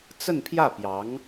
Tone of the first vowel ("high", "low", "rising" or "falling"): falling